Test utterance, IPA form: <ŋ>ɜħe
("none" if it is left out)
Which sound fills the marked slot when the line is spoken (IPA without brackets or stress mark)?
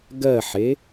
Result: ɡ